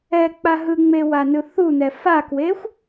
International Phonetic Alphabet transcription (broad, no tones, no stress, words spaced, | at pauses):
ɛk͡pa ɦɯŋ͡mewanɯ θun̪ɛ fakwexʷ